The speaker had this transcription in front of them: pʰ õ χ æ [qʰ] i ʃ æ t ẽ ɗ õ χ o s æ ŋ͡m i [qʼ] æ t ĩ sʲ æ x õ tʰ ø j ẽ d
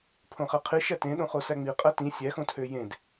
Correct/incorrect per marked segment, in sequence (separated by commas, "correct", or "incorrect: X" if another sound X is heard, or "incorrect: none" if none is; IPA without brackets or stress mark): correct, correct